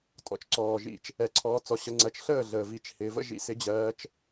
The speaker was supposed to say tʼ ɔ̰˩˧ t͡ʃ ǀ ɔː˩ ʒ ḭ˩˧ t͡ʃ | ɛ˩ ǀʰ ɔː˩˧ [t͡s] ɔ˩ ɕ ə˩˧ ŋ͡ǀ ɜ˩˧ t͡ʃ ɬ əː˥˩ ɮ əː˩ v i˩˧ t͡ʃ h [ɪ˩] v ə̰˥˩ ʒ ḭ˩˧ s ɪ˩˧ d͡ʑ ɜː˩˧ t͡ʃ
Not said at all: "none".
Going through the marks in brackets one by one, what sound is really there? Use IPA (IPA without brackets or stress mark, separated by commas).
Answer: t͡s, ɪː˩